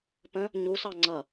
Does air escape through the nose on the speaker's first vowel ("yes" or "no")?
yes